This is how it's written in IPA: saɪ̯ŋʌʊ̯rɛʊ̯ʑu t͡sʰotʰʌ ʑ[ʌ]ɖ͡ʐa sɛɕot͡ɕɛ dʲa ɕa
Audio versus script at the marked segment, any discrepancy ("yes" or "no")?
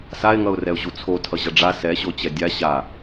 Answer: no